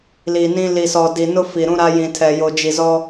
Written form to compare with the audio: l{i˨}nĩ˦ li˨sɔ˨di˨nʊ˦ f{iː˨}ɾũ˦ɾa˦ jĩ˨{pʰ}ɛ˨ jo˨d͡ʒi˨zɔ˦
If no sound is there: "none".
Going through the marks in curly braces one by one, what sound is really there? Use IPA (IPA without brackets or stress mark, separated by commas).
i˨, i˨, tʰ